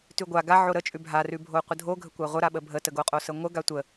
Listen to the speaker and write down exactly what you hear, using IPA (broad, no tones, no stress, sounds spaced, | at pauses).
t ʉ ɡʷ a ɡ a ʕ o ɾ ə t͡ʃʼ ʉ bʱ a r ʉ bʱ o qʷ ə dʱ o ɡʱ ə kʷ a ʁʷ ə ɾ a ɓ ə bʱ ə t ə ɡ o qʼ o s ə ŋʷ ə ɡ a tʷ ə